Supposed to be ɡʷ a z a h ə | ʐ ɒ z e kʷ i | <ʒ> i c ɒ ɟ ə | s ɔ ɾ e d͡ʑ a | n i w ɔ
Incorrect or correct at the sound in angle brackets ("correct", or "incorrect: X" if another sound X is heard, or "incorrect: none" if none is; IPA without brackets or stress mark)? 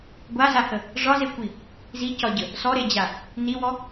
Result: incorrect: z